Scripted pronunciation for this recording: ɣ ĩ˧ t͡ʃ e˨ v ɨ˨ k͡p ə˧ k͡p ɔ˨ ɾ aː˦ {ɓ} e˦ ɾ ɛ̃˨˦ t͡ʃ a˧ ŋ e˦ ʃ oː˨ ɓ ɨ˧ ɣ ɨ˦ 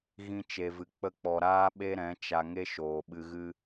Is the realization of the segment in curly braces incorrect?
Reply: no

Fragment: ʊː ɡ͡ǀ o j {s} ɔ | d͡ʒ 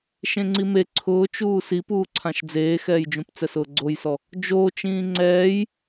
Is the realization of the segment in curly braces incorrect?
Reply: no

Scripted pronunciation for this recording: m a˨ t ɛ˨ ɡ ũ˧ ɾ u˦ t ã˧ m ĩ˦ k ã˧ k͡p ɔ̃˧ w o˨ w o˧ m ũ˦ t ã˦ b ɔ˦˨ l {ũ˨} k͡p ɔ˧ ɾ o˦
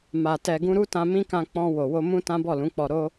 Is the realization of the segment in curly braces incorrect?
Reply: yes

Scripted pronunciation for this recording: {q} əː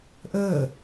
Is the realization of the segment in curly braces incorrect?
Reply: yes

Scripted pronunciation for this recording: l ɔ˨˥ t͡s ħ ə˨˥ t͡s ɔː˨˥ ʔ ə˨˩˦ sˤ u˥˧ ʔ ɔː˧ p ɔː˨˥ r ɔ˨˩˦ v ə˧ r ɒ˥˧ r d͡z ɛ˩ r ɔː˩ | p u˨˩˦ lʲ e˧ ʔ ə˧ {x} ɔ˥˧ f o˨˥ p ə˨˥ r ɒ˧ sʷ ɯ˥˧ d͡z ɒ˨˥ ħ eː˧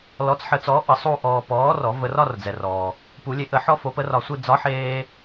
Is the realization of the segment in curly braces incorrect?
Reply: yes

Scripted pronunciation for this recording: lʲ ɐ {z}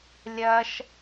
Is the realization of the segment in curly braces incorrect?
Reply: yes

